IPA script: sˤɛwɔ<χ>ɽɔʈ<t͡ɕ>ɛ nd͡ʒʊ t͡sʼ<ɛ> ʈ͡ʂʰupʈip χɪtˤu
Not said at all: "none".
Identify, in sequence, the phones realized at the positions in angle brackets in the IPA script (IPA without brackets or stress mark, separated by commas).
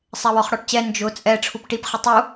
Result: χ, t͡ɕ, ɛ